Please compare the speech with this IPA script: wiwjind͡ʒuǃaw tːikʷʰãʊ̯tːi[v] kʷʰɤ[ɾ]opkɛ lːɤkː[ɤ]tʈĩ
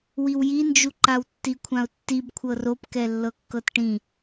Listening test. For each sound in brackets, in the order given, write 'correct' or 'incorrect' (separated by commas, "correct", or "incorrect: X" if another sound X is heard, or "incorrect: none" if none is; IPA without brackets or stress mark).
incorrect: b, incorrect: r, correct